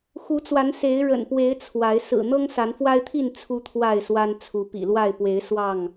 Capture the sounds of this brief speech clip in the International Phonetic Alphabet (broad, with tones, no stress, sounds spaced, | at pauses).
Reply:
x u˨˦ t͡s w a˨˦ n s e˨˦ ɪ̯ ɻ ə̰˨˩ n p w e˨˦ ɪ̯ t͡sʰ w a˨˦ ɪ̯ s ɹ̩˨˩ n̪ ɤ˦ ŋ s a˨˦ n f w a˦ ɪ̯ t̪ʰ i˥˨ n t͡sʰ u˦ t̪ʰ w a˥˨ ɪ̯ s w a˦ n t͡sʰ u˨˦ p ḭ˨˩ l w a˥˨ ɪ̯ p w e˨˦ ɪ̯ s w ɑ˥˨ ŋ